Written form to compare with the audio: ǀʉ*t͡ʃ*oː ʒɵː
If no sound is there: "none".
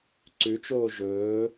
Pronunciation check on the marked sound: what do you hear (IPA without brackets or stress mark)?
t͡ʃ